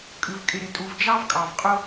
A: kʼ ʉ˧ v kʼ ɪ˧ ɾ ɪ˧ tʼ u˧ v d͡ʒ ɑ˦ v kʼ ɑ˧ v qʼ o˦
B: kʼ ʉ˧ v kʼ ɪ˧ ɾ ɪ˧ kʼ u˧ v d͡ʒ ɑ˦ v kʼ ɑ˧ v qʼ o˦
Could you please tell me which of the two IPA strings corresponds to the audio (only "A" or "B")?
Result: A